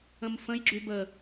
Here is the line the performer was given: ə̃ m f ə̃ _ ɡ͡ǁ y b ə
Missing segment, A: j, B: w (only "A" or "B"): A